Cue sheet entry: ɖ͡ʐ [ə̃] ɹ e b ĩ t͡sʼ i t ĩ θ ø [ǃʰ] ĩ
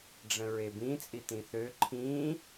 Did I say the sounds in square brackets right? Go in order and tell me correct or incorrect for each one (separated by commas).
correct, correct